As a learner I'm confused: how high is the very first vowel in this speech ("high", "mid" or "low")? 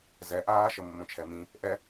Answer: mid